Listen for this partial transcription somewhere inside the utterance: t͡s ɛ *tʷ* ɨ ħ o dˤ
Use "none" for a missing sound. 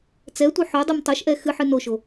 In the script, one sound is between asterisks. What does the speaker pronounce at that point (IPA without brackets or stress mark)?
tʷ